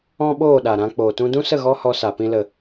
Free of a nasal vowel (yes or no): no